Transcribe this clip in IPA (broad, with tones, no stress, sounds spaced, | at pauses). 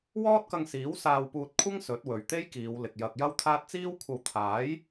w ɔː˥ t̚ k ɐ˧ ŋ s iː˨˥ w s aː˧ w p uː˧ t̚ kʷʰ ɐ˥ ŋ s ɵ˨˥ t̚ w ɵ˨ ɥ t̪ e˥ j k iː˨˧ w l ɪ˨ k̚ j ɐ˨ k̚ j ɐ˥ w t̪ʰ aː˥ t̚ t͡s iː˥ w kʷʰ ɐ˧ w t̪ʰ aː˨˥ j